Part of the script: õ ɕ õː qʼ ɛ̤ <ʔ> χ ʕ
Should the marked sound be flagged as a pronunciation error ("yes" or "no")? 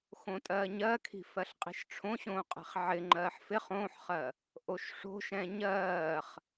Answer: yes